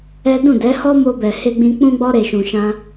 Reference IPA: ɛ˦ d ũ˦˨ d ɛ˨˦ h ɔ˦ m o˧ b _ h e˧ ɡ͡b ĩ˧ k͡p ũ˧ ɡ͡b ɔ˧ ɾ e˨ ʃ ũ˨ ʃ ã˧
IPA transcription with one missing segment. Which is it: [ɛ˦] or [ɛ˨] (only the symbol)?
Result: ɛ˨